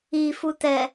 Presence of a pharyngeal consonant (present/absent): absent